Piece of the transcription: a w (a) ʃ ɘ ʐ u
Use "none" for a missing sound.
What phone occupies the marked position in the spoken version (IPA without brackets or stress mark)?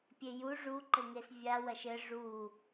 ɐ